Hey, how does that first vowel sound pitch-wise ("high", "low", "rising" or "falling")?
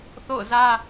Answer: falling